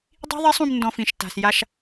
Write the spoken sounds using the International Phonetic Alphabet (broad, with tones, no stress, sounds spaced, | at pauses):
dˤ i̤˦ ðˤ e˦ sˤ ũ˧ m n d ɔ̃˧ f ĩ˨ ʃ t a̤˨ s j a˧ ʃ